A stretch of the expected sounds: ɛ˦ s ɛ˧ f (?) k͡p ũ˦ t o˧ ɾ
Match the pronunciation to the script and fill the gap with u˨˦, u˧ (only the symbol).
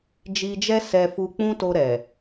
u˧